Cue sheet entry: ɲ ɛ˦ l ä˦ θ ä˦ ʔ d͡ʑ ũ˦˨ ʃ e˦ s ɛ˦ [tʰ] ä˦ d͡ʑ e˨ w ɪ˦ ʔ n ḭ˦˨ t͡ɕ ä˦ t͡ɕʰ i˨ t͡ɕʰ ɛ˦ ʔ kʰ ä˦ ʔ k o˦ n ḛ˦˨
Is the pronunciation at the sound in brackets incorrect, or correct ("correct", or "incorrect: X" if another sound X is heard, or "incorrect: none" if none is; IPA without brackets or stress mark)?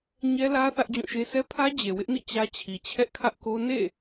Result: incorrect: pʰ